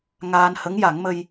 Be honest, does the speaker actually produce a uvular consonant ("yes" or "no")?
no